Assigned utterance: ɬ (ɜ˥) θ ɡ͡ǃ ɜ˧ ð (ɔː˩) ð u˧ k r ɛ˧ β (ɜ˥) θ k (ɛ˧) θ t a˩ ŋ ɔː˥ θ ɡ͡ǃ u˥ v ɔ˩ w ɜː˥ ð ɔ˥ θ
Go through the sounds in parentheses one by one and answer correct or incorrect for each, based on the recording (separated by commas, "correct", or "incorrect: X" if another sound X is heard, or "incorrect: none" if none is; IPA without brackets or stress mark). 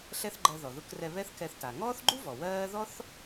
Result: incorrect: ɛ˥, incorrect: ɔ˩, incorrect: ɛ˥, correct